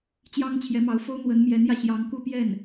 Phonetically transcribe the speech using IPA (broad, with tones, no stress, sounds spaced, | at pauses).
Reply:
t͡ɕ j ɑ˥ ŋ t͡ɕʰ j ɛ˧˥ m ɑ˧˥ ʊ̯ f o˥ ʊ̯ n̪ w ə˧˥ n m j ɛ˧˥ n j ä˧ ɕ j ɑ˧˥ ŋ k u˥˧ p j ɛ˥˩ n